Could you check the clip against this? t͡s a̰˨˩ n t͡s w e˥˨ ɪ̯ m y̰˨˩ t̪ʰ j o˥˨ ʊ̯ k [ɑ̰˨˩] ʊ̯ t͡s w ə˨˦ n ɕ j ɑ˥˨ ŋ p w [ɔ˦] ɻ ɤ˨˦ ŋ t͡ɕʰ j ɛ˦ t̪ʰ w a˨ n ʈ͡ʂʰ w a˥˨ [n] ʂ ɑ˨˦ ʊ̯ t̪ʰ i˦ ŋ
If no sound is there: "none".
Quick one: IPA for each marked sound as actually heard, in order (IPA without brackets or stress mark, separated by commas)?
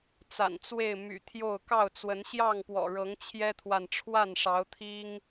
ɑ˥˨, ɔ̰˨˩, n